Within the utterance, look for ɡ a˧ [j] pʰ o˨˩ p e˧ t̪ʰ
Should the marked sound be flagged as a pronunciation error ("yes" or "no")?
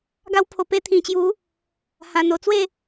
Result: yes